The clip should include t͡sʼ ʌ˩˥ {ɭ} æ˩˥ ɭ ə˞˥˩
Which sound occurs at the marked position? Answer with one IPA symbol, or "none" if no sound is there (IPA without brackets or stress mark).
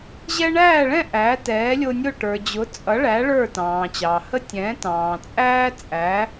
ɭ